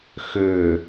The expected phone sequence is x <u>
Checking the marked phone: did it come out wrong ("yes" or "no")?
yes